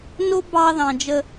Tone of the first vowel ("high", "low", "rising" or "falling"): high